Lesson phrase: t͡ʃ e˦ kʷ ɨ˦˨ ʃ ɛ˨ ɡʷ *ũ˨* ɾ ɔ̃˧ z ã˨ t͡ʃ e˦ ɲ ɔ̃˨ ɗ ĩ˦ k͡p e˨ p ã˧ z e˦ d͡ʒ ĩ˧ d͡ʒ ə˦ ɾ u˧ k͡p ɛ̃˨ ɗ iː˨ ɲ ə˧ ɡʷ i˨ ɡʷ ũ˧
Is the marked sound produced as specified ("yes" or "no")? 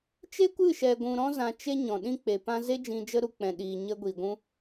yes